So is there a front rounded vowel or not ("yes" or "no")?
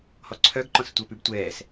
yes